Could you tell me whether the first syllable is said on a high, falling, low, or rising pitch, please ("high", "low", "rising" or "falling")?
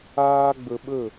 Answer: high